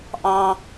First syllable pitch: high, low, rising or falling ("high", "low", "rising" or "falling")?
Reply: high